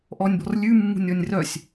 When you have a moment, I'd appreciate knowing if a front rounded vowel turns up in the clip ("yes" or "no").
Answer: yes